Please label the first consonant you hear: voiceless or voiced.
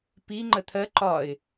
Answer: voiceless